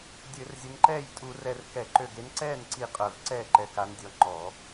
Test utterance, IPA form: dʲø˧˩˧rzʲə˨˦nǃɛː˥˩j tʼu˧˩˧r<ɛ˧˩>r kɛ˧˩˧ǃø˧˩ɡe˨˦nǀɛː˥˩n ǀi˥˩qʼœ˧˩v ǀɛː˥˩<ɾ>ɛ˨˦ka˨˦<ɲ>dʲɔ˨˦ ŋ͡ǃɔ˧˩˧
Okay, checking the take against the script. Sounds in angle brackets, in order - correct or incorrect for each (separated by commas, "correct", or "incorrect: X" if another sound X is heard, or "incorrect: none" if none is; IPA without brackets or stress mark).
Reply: correct, incorrect: ǃ, incorrect: n